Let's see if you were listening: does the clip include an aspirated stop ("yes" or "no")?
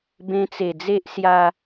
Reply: no